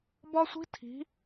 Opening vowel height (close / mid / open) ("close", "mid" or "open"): open